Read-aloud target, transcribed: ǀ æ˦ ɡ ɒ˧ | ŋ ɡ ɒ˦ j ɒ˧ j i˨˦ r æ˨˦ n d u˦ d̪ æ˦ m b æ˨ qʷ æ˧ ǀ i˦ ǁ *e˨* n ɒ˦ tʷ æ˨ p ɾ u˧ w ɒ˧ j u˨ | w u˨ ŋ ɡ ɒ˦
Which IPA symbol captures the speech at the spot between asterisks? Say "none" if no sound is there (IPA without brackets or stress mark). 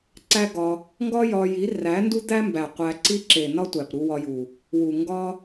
e˨